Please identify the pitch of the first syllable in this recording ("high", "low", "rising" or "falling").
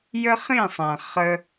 high